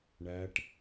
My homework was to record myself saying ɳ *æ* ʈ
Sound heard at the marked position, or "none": æ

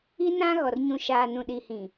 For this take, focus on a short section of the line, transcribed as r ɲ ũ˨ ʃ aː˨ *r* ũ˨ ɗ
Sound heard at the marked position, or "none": n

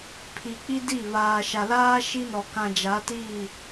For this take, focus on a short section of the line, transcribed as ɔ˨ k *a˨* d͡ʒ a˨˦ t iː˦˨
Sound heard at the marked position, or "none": ã˨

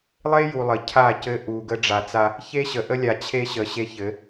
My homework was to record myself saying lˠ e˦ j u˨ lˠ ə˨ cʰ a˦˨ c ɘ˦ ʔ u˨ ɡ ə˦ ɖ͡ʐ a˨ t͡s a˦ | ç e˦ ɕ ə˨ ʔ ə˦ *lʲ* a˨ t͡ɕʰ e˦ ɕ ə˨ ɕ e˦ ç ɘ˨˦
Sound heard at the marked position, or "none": lʲ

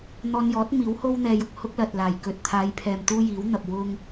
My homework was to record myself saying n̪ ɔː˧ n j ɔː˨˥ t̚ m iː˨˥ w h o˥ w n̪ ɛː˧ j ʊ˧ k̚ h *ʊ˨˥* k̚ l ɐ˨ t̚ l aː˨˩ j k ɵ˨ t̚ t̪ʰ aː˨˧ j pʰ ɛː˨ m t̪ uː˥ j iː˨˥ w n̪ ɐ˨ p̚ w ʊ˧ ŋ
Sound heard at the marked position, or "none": ʊ˥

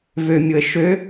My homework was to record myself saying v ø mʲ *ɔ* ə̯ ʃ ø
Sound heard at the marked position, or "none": ʊ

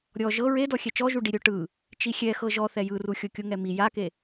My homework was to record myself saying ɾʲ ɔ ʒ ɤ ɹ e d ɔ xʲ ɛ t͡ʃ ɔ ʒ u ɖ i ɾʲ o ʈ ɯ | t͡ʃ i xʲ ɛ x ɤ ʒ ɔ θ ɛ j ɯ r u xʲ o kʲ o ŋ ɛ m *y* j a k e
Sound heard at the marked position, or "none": i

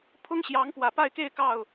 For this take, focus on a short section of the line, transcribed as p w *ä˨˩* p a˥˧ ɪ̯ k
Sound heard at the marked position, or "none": ä˨˩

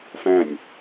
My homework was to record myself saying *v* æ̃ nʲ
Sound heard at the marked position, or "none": f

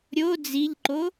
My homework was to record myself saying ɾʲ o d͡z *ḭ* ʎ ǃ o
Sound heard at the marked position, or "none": i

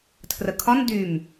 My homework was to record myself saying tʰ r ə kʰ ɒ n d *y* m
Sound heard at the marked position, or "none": y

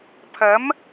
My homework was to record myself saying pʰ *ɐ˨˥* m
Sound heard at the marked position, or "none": ɐ˨˥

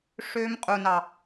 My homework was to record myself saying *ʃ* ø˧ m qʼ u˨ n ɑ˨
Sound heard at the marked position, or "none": ʂ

